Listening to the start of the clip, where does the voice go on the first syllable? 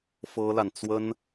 high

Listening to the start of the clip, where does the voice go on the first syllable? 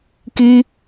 high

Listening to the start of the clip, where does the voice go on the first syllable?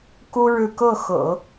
high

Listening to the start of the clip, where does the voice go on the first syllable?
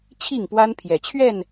falling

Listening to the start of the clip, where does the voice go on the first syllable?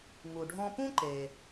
low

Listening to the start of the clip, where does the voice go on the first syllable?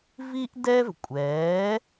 high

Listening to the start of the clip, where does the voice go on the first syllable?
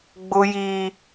high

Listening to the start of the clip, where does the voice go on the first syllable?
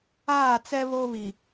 falling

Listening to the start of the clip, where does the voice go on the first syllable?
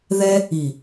high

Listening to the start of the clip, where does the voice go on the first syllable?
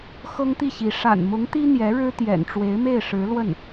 high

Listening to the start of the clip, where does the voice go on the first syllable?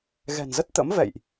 low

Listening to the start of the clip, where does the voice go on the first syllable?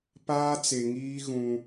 high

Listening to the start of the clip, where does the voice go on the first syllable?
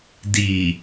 low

